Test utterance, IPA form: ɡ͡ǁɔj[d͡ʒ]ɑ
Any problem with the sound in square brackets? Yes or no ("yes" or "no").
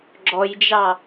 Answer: no